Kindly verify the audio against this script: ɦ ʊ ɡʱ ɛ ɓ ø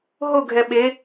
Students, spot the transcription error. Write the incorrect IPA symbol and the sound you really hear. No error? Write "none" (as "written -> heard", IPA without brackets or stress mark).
ø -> e